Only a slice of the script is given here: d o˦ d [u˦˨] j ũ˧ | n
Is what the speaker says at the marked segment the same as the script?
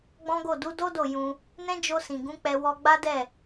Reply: no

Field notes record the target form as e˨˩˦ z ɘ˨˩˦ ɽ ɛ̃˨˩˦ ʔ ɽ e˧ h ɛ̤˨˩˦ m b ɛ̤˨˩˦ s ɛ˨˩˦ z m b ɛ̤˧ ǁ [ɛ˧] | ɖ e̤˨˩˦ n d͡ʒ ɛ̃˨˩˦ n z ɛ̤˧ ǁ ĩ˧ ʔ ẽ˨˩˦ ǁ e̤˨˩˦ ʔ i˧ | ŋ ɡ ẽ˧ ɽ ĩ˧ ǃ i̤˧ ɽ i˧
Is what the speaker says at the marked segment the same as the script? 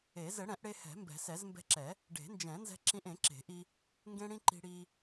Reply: no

